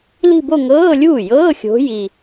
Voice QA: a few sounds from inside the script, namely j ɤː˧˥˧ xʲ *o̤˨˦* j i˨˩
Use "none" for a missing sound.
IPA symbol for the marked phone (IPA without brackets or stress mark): o̤˨˦